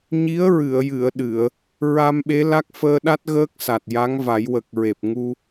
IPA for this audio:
ɲ i˧˥ ə̯ ɹ ɨ˨˩˨ ə̯ j ɨ˨˩˨ ə̯ ɗ ɨ˨˩˨ ə̯ | ɹ a˧ m ɓ e˧˥ l a˦˥ k̚ f əː˧ ɗ a˦˥ t̚ ɣ əː˦˥ k̚ s a˨˩ t̚ j a˧˥ ŋ v a˨˩˦ j w ə˨˩ k̚ ɹ e˨˩ p̚ ŋ u˧

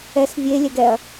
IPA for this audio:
ɛ s vʲ e lʲ ɛ ɡ ɛ ɐ̯

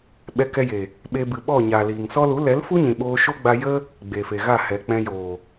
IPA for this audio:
ɓ ɛ˧ k ɛ˧ j e˨ | ɓ e˧ b ɨ˨ ɓ ɔ˦˨ ɲ a˨ l iː˨ ŋ s ɔ˧ l u˨˦ l ɛ˨˦ l f u˦ ɲ ĩ˨ ɓ oː˧ ʃ o˦ ɡ͡b a˦ j ə˦ | ɡ͡b e˨ f e˨ ɣ a˦˨ h ɛ˨ k͡p ɛ̃˧ j oː˨

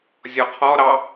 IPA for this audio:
zʲ ɔ qʰ ɔ ɾ ɑ

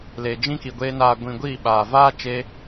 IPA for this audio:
l e˨ d͡ʒ ĩ˦ k i˨ ɡʷ eː˧ n aː˨ ɡʷ ĩ˨ ɡʷ iː˦˨ ɓ aː˨ v aː˦ t͡ʃ eː˧

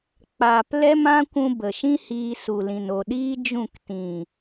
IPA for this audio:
k͡p aː˧ p l ɛ˦ m ã˦ kʷ ũ˧ b ə˨ ʃ ĩ˦ h iː˧ s u˨ l ĩ˨ n o˨ ɗ iː˦ d͡ʒ ũ˦˨ k t ĩ˨

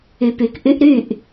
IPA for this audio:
y˨ p y˨ k ʔ y˦ ʔ ɾ y˦˨ ʔ

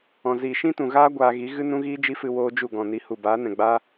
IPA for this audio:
ɔ̃˨ z iː˨ ʃ ĩ˦ t ũ˨ ɣ aː˦ ɡʷ aː˧ ɣ i˨˦ ɣ ɨ˦ n ũ˦ ɣ iː˦ d͡ʒ i˦ f ɨ˧ w oː˦ d͡ʒ u˦˨ ɡ ɔ̃˨ n i˨˦ h u˨ b aː˨˦ n ɛ̃˨ ɡ͡b aː˦

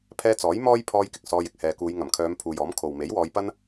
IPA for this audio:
pʰ ɛː˧ t͡s ɔː˨˥ j m ɔː˥ j pʰ ɔː˧ j k ɪ˨ k̚ s ɔː˧ j ɪ˨ k̚ h ɛː˨ k uː˨˧ j ŋ ɐ˨˩ m kʰ œː˨˧ m pʰ uː˨ j ɔː˨˥ m kʰ o˨ w m e˨˥ j w ɔː˨˧ j p ɐ˥ n

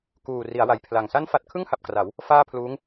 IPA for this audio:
k uː˨˩ r i˩˦ a̯ w a˩˦ j pʰ l a˨˩ ŋ s a˥˩ n f a˥˩ t̚ kʰ ɯ˥˩ ŋ h a˨˩ p̚ k r a˩˦ w | f aː˥˩ pʰ l uː˦˥ ŋ

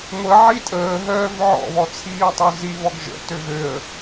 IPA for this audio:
ŋʷ ə ʕ i tʼ əː ɦ œː v ʕ ɔ̰ β ɔ t͡sʰ iː tˤ u z i β ɔ ɡ ʒ ə̰ t ø ɣ ø ə̯

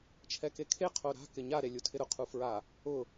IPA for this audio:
t͡ʃʰ ɛ k e kʰ e qʰ o ɾ a̤ k ɪ ɲ a ɾ e lʲ u tʰ ɪ ɾ ʊ qʰ u f ɹ a | ʊ

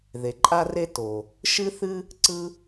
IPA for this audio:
ð e˩ ǃʼ a˥ r e˥ t o˩ | ʃ ɨ˥ θ ɨ˥ | ǀ ɯ˥

